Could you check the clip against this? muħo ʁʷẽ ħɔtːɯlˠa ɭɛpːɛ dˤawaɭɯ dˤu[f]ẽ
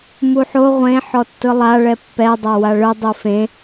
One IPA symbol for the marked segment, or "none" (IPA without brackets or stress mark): f